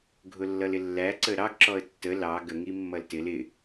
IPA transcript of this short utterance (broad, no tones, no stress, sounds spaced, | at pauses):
ɡʱ ʊ lː ʌ l ɪ lː æ ǀ ə ɾ ɑ ɡ ǁ ɔ ə̯ tː ə l ɑ ɡ ə ŋ i mː ʌ l t ɪ l ɪ